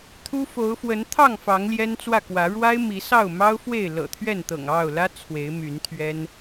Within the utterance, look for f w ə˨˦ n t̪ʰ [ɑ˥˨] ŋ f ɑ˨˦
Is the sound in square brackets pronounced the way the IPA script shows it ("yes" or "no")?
yes